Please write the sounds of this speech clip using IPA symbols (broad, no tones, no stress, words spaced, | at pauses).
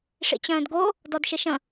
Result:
ʂḭt͡ɕœ̃ːdɡo | dɔdʃɪʃə̃